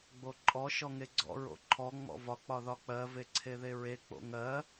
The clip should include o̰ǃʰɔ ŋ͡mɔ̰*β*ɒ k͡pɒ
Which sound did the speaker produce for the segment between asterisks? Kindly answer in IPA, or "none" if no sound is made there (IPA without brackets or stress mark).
v